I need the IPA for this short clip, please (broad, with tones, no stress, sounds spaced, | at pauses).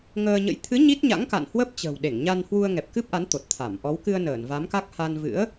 ŋ əː˧ ɲ ə̰˧˥ j t̪ʰ ɨ˨˦ ɲ i˦˥ t̚ ɲ a̰˧˥ ŋ k a̰˧˨ n h w ə˦˥ p̚ t͡ɕ ə̤ː˨˩ w ɗ e˧˩ ŋ ɲ a˧ n h w u˧ ə̯ ŋ ɛ˨˩ p̚ k ɨ˦˥ p̚ ʔ a˨˦ n t̪ o˨˩ t̚ t̪ʰ a˧˩ m ʔ ɔ˨˦ w k ɨ˧ ə̯ n əː˧˩ n v a˨˦ m k a˦˥ k̚ h a˧ n v ɨ̰˧˥ ə̯